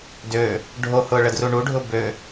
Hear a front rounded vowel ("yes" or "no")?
yes